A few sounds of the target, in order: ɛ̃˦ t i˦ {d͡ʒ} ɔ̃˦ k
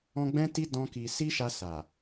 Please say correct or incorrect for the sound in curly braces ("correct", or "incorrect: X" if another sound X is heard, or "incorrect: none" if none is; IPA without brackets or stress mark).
incorrect: d